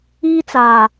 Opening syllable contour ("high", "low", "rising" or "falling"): high